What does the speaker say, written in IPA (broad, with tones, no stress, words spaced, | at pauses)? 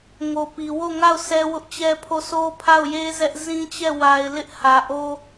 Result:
ŋo˨pi˨wo˦˨ŋa˦˨ʊ̯ sɛ˦wʊ˦ʔt͡ɕɛ˦pʰo˦˨ so˦pʰa˦˨ʊ̯je˦ zɛ˦ʔ zĩ˦t͡ɕɛ˦˨ wa˨ɪ̯ lɪ˦ʔhä˨ ʔo˦